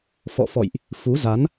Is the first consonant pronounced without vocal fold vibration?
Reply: yes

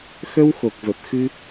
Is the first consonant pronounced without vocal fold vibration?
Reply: yes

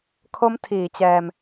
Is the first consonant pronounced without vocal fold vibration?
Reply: yes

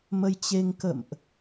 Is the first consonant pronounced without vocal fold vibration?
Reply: no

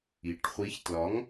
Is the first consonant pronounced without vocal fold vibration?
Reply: yes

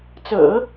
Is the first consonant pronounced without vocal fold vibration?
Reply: yes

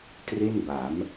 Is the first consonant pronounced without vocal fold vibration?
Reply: yes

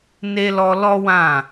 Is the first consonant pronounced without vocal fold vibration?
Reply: no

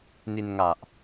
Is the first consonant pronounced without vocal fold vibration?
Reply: no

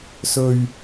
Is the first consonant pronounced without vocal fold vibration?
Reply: yes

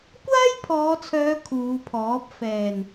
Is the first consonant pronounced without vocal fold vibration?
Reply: yes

